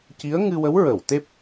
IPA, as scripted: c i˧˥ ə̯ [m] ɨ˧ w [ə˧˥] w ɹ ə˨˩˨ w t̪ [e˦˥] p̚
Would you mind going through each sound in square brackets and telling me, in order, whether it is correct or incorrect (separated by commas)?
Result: incorrect, correct, correct